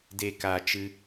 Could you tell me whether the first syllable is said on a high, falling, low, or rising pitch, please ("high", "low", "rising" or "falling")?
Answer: low